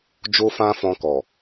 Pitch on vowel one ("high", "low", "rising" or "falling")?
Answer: high